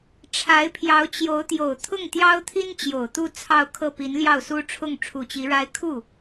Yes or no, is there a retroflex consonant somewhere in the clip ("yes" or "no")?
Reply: yes